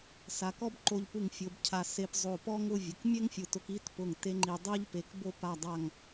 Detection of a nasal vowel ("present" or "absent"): absent